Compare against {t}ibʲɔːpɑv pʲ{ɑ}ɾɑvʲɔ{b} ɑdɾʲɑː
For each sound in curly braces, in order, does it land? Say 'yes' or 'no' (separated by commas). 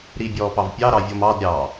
no, yes, no